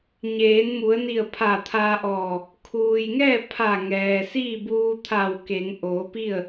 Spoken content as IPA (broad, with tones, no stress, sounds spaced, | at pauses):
ɲ eː˩˧ n m u˩˧ ə̯ n i˧˩ ə̯ pʰ a˧˩ t̪ʰ a˧ ʔ ɔː˧˩ | kʰ uː˩ j ŋ ɛː˥˨ pʰ a˧˩ ŋ ɛː˩ s iː˥˨ b uː˧ t̪ʰ a˧˩ w k e˩˧ ŋ ʔ oː˩˧ p i˥˨ ə̯